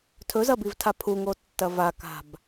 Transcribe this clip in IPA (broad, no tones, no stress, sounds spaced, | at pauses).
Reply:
tʰ ɵ z ɐ b i v tʰ a pʰ u ŋ o tː ɐ v a k a̤ b